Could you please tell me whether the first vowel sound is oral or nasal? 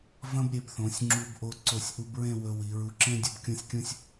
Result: nasal